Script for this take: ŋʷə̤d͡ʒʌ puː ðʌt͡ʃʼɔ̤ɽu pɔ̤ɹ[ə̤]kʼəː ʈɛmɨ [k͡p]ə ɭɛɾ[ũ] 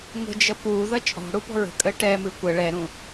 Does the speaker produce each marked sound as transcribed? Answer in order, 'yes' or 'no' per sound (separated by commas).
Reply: yes, no, yes